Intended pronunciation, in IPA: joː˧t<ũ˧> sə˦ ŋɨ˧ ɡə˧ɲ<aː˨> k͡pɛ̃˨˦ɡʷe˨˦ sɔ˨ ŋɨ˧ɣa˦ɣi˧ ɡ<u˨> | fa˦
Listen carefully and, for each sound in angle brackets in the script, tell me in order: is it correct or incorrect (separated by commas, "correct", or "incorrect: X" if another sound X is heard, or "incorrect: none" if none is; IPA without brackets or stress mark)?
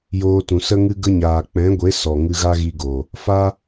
incorrect: ũ˨, correct, incorrect: o˨